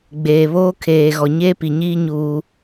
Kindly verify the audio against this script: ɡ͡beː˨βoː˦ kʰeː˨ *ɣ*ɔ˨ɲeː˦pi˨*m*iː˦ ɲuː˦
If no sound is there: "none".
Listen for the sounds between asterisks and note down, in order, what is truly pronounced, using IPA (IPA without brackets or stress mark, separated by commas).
ɣ, ɲ